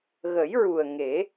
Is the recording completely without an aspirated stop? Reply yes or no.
yes